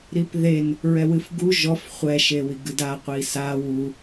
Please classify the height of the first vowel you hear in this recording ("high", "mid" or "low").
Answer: high